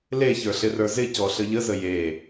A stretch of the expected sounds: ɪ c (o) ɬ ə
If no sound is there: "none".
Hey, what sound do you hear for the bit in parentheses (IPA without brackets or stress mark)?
ɔ